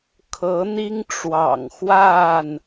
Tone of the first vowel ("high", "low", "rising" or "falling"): rising